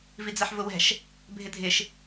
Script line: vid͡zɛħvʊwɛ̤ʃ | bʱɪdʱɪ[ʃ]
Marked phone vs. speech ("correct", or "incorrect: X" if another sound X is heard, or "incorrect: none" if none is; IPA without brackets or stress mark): correct